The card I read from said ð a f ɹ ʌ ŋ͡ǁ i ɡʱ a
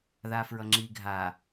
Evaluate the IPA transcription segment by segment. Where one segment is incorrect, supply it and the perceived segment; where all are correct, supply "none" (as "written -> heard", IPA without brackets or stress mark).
none